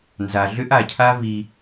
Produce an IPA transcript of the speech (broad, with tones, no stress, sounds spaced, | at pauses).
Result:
n z a˨ ɮ ʏ˦ ʔ a˨ cʰ a˦ v i˦